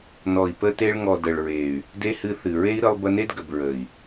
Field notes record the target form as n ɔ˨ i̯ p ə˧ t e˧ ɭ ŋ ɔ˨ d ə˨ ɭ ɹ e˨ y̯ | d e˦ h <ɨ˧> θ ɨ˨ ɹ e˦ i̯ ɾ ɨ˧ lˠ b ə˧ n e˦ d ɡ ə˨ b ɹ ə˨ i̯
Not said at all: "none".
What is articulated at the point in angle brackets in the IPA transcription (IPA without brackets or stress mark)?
ɨ˧